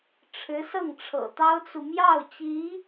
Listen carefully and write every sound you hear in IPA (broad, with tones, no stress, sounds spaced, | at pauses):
ʈ͡ʂʰ ɻ̩˧˥ s ɤ˥˩ ŋ ʈ͡ʂʰ ɤ̰˨˩ t̪ ɑ˥ ʊ̯ t͡s u˨ m j ɑ˥˩ ʊ̯ t͡ɕ i˧˥